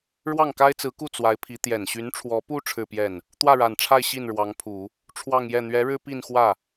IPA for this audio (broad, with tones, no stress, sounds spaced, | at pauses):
ɻ w ɑ˥˩ ŋ k a˥ ɪ̯ t͡s ɹ̩˧˥ k u˥˩ t͡s w a˧˥ ɪ̯ pʰ i˧˥ t̪ j ɛ˨˩ n ɕ y˧˥ n ʈ͡ʂʰ w ɔ˧˥ p u˥ ʈ͡ʂʰ ɻ̩˥˧ p j ɛ˥˩ n | t̪ w ä˥˩ ɻ a˨˩ n ʈ͡ʂʰ a˥˧ ɪ̯ ɕ i˥˩ n ɻ w ɑ˧˥ ŋ pʰ u˨˩˦ | ʈ͡ʂʰ w ɑ˥˧ ŋ j ɛ˥˩ n̪ ɥ ɛ˧˥ ɻ ɻ̩˥ p i˥˧ n x w ä˥˩